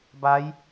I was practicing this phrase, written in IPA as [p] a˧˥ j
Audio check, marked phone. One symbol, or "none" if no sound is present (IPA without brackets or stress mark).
b